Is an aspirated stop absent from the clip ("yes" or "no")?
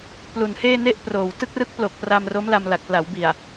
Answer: yes